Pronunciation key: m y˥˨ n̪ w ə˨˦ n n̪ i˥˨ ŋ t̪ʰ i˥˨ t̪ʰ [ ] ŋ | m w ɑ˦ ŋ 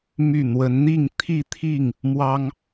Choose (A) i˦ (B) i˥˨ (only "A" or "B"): B